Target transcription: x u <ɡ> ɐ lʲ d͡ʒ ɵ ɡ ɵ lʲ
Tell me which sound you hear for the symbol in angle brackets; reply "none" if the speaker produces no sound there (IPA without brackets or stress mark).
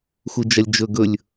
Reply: d͡ʒ